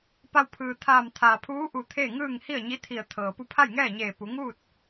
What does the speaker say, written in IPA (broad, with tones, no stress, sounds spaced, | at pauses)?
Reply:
p a˧ w pʰ ɯː˩ t̪ʰ aː˧˩ m t̪ʰ aː˩ pʰ uː˧˥ ʔ u˧˩ t̪ʰ e˥˨ ŋ ɯː˥˨ ŋ h i˥˨ ə̯ ɲ i˧˥ t̪ʰ i˧˩ ə̯ t̪ʰ ɤː˩ p u˥˨ pʰ a˥˨ j ŋ ɛː˥˨ ɲ eː˧˩ p u˩˧ ŋ uː˥˨ t̚